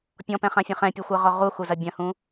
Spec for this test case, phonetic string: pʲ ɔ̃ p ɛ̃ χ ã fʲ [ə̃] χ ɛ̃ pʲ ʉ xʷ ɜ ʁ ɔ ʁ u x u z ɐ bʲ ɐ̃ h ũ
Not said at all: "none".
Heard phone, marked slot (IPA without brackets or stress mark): ã